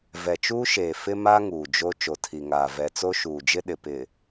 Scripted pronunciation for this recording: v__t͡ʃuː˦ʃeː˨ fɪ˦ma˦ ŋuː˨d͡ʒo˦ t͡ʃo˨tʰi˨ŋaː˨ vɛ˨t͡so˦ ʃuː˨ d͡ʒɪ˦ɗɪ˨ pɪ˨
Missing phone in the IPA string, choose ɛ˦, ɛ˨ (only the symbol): ɛ˨